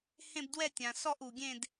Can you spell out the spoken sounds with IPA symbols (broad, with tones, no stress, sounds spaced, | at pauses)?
h ẽ˥˧ b d w ɛ˥˧ tʲ ã˩ s ɔ˥˧ ʔ u˩ ɡʲ ẽ˥˧ d